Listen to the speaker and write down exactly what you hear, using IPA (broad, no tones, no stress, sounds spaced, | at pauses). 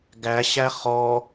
ɡ æ ɕ æ χ ɔ